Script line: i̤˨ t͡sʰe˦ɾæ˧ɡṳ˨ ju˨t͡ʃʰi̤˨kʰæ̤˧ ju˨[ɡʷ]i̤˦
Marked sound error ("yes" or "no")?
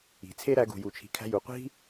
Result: yes